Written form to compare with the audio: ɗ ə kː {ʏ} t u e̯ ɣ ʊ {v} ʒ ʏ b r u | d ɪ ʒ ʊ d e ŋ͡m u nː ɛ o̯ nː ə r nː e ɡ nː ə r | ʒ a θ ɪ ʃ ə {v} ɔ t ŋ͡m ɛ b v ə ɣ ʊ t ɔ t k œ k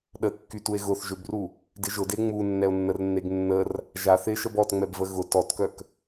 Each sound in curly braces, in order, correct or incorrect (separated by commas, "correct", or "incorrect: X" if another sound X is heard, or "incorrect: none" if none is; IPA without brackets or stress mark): incorrect: y, incorrect: θ, incorrect: b